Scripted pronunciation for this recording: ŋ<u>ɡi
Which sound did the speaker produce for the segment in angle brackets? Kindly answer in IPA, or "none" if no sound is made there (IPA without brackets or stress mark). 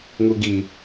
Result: u